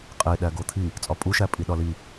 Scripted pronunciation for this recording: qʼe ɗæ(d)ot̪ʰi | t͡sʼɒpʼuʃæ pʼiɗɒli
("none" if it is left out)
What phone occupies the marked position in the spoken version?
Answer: ɡ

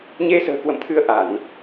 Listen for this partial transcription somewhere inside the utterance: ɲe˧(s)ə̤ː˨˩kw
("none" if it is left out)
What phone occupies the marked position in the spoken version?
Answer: s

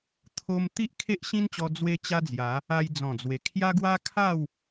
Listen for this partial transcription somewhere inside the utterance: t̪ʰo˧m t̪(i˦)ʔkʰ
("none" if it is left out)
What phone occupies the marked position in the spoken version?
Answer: i˦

